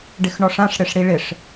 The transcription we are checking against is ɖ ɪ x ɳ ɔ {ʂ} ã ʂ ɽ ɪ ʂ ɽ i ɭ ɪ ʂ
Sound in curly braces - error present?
no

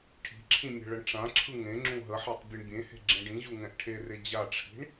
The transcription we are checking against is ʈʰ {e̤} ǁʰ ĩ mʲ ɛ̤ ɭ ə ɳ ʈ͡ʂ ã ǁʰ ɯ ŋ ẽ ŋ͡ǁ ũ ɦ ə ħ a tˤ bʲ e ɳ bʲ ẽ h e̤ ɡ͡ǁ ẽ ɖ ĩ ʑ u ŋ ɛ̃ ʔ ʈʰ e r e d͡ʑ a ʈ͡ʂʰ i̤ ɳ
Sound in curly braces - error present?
yes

